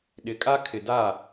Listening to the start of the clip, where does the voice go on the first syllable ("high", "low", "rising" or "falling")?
rising